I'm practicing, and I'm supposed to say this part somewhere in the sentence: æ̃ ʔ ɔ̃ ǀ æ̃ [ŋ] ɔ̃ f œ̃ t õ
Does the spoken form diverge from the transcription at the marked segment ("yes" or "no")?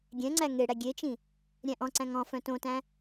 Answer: no